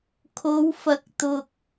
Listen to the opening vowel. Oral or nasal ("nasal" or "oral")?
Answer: oral